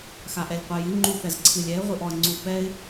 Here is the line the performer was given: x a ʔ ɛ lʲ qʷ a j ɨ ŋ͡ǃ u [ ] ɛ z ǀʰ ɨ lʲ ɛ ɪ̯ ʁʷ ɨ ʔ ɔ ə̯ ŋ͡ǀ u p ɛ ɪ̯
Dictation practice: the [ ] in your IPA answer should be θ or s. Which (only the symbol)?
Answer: θ